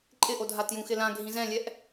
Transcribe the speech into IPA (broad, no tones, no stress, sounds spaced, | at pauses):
ǃʼ ɪ ʔ o dʱ a t j ũ x ɪ l ã ɡʱ ĩ z ɛ̃ lʲ ɛ ʔ